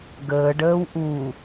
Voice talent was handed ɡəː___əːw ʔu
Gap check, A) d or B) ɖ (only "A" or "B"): B